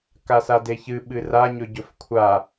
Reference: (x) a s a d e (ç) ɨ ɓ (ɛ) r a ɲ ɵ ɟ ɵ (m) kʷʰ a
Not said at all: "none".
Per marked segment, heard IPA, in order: k, ç, ɨ, f

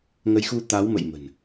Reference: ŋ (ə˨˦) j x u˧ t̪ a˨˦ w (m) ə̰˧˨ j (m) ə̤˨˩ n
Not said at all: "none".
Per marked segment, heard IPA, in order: ə˨˦, m, m

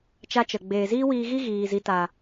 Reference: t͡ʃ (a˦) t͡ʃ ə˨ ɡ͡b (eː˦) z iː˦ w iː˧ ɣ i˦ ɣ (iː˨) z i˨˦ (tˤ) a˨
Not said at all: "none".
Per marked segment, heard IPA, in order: a˦, eː˨, iː˨, t

